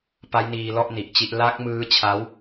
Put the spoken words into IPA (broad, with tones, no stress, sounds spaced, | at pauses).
p a˦˥ j n iː˧ l ɔ˥˩ ʔ n i˨˩ ʔ t͡ɕ i˥˩ ʔ l a˦˥ k̚ m ɯː˦˥ t͡ɕʰ a˦˥ w